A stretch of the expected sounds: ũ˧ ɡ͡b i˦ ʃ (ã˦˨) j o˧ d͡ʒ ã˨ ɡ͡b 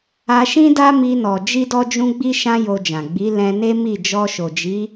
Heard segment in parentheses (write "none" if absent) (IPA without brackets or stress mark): ã˦